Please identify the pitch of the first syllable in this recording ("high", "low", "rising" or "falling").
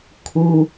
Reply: low